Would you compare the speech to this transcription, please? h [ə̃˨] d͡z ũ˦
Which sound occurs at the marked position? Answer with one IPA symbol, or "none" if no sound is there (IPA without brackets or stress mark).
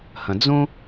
ə̃˨